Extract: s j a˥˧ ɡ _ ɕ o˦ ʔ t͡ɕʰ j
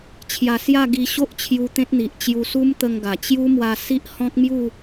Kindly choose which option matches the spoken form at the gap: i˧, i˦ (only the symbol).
i˧